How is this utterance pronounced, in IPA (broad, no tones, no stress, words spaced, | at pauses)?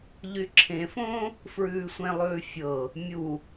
ʎyǁʰẽfõː | fɹʉːsʷẽlˠʉː fʲɤ | mʲu